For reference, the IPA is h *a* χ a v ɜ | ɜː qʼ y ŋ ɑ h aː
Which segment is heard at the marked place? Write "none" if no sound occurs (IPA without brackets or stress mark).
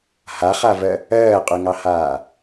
a